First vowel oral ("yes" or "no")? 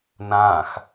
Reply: no